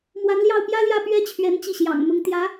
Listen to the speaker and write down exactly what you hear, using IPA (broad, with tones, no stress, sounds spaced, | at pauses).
m w a˧˥ n l j ɑ˥˩ ʊ̯ p j ä˥ l j ä˥˩ p ɥ ɛ˥ t͡ɕʰ ɥ ɛ˧˥ n t͡ɕ i˥˩ ɕ j ɑ̰˨˩ ŋ m ʊ˧˥ ŋ t̪ j ä˧˥